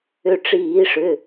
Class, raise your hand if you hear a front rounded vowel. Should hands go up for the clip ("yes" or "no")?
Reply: yes